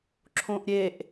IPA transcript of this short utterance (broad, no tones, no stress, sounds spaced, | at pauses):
ǁʰ õ ʔ ɾʲ e ʔ